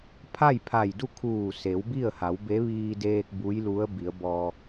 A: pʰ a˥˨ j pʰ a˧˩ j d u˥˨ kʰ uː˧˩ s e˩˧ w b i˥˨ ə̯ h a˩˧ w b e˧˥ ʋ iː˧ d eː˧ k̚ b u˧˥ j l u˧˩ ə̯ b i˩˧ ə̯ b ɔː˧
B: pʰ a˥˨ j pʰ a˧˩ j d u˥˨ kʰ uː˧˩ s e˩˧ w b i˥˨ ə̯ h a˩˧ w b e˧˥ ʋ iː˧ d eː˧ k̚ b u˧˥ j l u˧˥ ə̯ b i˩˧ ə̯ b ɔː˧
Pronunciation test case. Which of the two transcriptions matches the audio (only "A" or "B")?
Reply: B